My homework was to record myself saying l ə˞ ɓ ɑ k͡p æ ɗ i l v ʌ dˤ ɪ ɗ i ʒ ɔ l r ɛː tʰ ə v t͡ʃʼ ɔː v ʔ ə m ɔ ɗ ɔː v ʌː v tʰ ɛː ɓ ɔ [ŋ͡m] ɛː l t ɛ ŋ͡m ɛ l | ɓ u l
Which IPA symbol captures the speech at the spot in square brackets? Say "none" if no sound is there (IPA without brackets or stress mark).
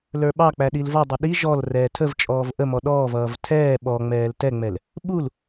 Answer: ŋ͡m